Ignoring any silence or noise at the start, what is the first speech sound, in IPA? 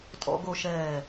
tʼ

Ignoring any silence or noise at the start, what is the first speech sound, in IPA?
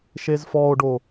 ʃ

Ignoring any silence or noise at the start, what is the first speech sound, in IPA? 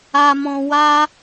a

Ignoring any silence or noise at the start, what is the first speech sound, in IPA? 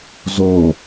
z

